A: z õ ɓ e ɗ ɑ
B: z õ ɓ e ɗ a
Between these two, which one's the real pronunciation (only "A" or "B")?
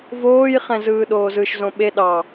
A